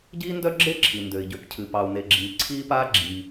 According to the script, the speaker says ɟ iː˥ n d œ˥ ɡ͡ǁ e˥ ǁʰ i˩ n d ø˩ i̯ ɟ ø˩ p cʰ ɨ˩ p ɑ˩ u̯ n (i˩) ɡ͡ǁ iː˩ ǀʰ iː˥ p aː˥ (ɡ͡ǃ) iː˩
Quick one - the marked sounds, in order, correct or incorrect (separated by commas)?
incorrect, incorrect